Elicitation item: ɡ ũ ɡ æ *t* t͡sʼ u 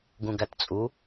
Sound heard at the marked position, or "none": t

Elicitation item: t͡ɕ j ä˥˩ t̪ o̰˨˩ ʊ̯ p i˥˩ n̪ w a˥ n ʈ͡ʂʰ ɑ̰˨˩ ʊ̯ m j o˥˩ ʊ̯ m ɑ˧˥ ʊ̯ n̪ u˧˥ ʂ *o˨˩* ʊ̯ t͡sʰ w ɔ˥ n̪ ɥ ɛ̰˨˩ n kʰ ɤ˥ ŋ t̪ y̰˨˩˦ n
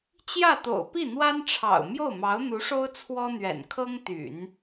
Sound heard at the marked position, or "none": o˥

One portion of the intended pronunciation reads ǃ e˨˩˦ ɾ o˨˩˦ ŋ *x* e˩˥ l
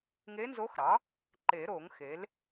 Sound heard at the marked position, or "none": x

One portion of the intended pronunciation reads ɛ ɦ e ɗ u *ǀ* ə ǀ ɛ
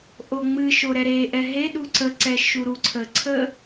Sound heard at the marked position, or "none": ǀ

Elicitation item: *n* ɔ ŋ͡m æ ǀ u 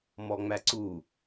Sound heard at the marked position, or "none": m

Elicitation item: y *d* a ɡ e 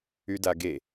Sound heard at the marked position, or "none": d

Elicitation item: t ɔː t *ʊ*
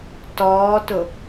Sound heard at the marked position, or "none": ʊ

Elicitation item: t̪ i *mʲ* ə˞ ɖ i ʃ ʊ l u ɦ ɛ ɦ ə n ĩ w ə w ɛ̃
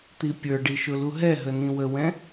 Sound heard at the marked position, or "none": pʲ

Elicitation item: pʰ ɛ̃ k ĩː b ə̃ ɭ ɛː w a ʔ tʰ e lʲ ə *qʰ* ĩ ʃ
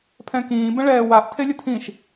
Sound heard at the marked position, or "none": tʰ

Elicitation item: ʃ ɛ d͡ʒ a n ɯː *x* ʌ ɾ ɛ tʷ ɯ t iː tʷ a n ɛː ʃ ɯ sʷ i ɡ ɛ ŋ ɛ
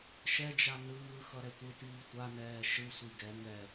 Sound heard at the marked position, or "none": x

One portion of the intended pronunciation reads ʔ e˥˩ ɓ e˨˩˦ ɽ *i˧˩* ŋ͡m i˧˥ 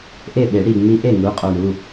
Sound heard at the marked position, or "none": i˧˩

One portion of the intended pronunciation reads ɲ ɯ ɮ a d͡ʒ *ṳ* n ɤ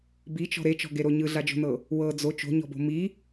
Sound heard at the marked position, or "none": o̤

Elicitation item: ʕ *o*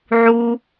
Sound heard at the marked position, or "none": u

